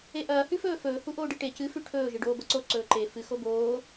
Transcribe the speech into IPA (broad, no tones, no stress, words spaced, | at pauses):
eʔɐː hʉfɵːfɵː huʔoːɖiʈe cɨ fʉʈʰɵː ʒɨɖoːbɐǀo ǀɵːǃe fɨ xoboː